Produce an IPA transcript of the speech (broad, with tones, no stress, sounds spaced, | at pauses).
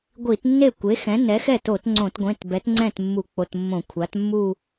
ɡʷ i˧˩˧ t nː e˥˩ kʷ e˩˥ x ɛ̃˩˥ n ɛ˩˥ x ɛ˥˩ t o˧˩˧ t ŋ͡ǀ õ˧˩˧ t ɡʷ ẽ˩˧˩ t b ɛ˩˥ t ŋ͡ǀ ɛ̃˥˩ t mː u˧˩˧ k͡p o˩˧˩ t mː õ˧˩˧ kʷʰ a˩˥ t mː u˥˧